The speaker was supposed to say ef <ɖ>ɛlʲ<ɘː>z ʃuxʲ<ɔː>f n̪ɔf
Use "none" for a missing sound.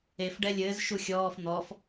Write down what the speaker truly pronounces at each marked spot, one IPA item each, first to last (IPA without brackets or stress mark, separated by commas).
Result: ɖ, ɘː, ɔː